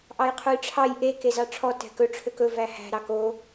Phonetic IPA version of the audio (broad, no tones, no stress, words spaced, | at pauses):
ʔɑjqʰujʈ͡ʂʰɑj ʔe kezɑʈ͡ʂʰɔ tɛ̤kɵ ʈ͡ʂʰøkɵ væhæ̤ ɾɑko